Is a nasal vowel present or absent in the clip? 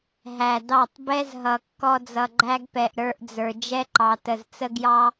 absent